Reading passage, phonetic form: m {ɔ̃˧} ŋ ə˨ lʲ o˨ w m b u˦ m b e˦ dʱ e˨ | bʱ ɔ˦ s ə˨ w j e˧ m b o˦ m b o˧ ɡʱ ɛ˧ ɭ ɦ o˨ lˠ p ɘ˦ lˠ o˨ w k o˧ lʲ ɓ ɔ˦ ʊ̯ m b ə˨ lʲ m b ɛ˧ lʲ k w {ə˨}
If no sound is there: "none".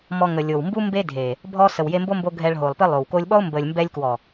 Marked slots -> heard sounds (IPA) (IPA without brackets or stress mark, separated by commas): ɔ˧, ɔ˨